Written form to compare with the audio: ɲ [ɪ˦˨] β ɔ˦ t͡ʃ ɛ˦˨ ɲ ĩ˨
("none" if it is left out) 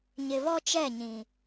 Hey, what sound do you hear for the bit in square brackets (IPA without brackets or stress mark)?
ɪ˨